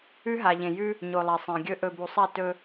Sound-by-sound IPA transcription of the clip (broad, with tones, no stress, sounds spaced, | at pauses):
ʉ˦ ɦ a˨ ʎ ẽ˨ j ʉ˦ | ɲ o˨ lˠ a˨ sˤ ẽ˨ ɡʲ ɵ˦ ʔ ɵ˨ b u˨ sˤ a˦˨ t ɵ˦